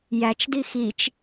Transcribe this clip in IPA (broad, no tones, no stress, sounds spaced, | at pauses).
j æ t͡ʃ d i x i t͡ʃ